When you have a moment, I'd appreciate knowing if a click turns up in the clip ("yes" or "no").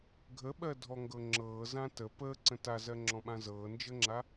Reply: yes